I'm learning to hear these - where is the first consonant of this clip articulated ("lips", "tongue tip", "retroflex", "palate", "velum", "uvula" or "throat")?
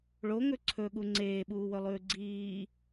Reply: retroflex